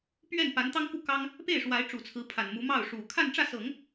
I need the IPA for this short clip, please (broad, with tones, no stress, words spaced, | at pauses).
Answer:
pɥɛ˥˩npa˧˥nt̪ɑ˥ŋku˥˩ kɑ˥ŋ | pe˥˩ɪ̯ʂwa˧˥ɪ̯ʈ͡ʂu˨˩t͡sʰɹ̩˧˥ pʰa˨˩nmu˧˥ mɑ˥˩ʊ̯ʂu˨˩ kʰa˥˧nʈ͡ʂä˥˩sɤ˨˩˦ŋ